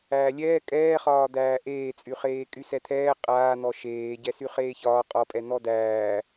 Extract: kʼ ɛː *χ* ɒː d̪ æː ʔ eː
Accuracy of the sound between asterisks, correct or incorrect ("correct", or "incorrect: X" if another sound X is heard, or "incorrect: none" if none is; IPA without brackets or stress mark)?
correct